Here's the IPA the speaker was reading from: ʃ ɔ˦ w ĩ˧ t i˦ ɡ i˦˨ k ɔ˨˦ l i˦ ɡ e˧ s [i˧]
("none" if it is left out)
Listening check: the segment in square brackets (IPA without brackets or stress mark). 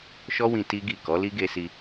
i˧